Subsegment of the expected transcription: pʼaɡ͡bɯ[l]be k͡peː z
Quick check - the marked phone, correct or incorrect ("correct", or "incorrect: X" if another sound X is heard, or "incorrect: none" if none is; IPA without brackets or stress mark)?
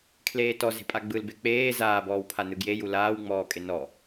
correct